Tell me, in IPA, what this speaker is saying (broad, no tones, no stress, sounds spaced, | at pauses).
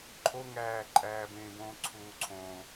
ǃʰ o ŋ æː ǃʼ æː b ẽː b õː ǀʰ uː ǀʰ õ